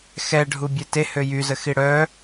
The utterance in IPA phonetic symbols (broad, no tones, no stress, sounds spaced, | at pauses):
x ɛ ɖʱ u bʲ ɛ t e h ø j y z ə x i ɽ œ